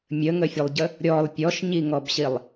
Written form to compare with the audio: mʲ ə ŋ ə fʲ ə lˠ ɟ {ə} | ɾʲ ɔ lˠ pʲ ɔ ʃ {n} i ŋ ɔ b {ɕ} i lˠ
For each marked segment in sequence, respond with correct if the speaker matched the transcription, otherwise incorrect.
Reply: correct, incorrect, correct

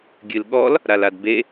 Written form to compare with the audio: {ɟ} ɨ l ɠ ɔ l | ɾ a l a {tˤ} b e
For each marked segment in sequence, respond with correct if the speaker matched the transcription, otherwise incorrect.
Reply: incorrect, incorrect

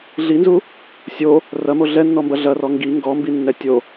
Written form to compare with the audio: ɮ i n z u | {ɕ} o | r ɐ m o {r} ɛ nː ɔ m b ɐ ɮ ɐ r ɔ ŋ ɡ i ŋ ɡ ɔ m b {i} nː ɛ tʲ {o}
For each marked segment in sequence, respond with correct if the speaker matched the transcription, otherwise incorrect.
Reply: incorrect, incorrect, correct, correct

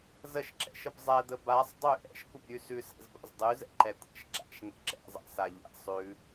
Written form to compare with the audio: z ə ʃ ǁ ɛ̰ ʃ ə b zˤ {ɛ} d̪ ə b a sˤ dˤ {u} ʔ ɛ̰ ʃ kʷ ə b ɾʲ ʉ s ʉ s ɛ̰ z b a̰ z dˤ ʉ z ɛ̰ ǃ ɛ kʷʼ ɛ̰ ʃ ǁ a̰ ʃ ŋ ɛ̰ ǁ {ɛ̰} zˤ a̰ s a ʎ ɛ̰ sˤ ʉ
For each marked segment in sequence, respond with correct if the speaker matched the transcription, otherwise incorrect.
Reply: correct, incorrect, correct

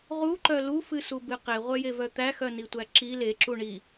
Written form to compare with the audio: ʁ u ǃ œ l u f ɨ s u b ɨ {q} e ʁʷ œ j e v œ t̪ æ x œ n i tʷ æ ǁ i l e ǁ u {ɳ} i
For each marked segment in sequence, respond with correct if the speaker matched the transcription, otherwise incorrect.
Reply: correct, correct

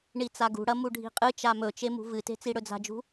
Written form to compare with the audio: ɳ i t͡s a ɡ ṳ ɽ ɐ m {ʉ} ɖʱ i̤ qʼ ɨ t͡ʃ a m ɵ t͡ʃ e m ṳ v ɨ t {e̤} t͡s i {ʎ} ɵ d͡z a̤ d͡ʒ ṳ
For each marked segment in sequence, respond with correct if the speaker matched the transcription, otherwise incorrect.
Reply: incorrect, correct, incorrect

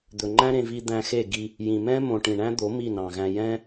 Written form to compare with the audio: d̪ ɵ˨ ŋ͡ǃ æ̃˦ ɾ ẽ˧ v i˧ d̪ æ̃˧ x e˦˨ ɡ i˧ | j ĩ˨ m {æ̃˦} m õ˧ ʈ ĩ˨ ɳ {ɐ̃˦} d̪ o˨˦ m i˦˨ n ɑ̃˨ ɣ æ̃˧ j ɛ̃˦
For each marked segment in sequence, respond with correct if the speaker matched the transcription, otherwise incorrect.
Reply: incorrect, incorrect

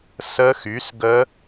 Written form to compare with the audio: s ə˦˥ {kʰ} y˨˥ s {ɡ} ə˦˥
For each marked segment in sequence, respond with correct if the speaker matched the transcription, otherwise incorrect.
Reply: incorrect, correct

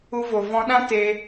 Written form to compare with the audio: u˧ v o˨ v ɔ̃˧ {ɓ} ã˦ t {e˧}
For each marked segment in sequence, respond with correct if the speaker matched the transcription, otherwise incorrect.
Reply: incorrect, correct

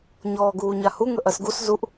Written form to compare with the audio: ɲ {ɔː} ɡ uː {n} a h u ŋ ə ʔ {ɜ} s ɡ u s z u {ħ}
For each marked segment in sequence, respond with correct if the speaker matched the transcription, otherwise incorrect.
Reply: correct, incorrect, correct, incorrect

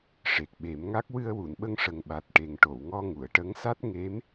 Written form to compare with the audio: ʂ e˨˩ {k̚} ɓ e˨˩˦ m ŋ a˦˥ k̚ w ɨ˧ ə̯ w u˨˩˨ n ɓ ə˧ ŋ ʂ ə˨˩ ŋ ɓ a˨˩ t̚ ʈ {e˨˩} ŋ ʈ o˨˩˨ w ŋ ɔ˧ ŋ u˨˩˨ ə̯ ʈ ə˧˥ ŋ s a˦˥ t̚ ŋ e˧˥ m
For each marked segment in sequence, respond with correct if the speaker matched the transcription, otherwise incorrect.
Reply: correct, correct

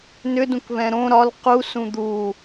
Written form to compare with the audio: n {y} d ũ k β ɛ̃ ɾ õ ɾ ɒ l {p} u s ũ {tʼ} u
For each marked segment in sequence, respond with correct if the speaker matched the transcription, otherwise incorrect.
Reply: incorrect, incorrect, incorrect

